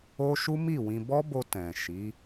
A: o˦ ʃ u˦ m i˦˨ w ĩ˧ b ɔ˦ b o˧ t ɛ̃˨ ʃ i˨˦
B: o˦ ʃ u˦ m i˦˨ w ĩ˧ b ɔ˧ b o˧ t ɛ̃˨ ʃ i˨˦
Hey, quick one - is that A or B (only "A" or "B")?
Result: A